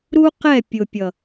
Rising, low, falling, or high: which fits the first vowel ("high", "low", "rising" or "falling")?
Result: high